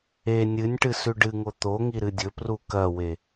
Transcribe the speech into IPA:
e nʲ ɨ nʲ ʈ ɨ s ʉ ɖ ɨ ŋ o t̪ o ŋ i ɾ ɨ dʲ ɵ p r u k ɐ w e

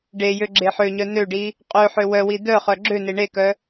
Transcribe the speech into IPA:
ɖ e j ø ɡ͡ǁ e ħ ø ɲ œ n ø ɖ i | qʼ ø ħ ø w œ w i d̪ œ χ œ ɡ͡ǁ ø n e ɳ e k œ

